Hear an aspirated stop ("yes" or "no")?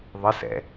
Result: no